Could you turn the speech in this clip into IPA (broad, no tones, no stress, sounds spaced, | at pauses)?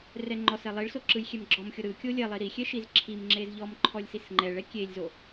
r ɛ ŋ͡ǃ ɔ s ɛ lˠ i ɭ s o ǁ ɯ j xʲ ɛ m ɡ͡ǁ ɔ m xʲ o ɾ ɯ kʲ o lʲ ɛ lˠ i ɾ i xʲ ɛ ʃ i z ǁʰ i m ŋ͡ǁ e z ʎ ɔ m ǃʰ ɔ lʲ s i s ŋ͡ǃ ɛ ɭ ɛ kʲ e lʲ z o